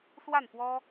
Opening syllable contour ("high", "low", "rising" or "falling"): falling